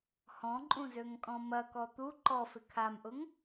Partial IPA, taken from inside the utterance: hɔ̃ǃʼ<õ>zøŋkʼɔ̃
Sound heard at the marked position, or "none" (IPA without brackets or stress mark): ũ